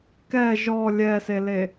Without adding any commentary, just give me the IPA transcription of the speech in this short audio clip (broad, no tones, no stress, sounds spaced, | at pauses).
k ɛ ʒ ɔ lʲ ɛ s e l e